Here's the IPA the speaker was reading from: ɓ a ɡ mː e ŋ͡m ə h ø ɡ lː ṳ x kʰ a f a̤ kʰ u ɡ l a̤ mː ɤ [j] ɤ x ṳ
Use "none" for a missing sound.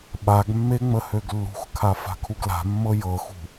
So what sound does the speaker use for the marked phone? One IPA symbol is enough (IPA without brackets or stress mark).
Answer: j